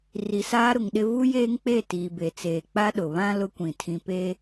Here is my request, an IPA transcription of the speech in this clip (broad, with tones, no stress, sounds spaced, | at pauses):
r i˨ s aː˦ ɾ ʊ˨ ŋ ɗ ɪ˦ v u˦ j eː˦ ŋ k͡p e˦˨ t iː˨ b e˨ t͡s eː˨ k͡p a˦ ɗ ʊ˨ β ã˦ l ʊ˦ kʷ ĩ˨ tʰ ĩ˨ p e˦